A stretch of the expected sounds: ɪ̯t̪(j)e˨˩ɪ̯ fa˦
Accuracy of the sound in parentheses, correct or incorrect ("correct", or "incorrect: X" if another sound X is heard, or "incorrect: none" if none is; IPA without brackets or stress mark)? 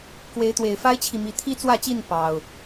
incorrect: w